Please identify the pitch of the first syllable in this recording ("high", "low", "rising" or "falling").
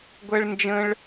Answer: high